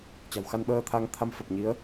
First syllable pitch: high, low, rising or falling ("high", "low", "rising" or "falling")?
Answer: low